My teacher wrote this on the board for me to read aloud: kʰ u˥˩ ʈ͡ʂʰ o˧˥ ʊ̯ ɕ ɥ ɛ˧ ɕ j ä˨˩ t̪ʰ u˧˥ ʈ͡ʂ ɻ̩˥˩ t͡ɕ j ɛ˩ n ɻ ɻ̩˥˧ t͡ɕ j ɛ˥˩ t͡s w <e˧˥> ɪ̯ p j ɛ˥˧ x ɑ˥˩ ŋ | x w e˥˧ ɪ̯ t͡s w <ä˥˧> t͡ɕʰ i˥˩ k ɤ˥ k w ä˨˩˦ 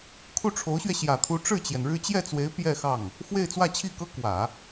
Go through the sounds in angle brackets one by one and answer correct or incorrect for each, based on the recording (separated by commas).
correct, correct